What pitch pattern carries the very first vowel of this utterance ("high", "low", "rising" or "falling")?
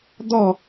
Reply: falling